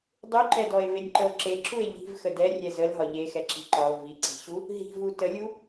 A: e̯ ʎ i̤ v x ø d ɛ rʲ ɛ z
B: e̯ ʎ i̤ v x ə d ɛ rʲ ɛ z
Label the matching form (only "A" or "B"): B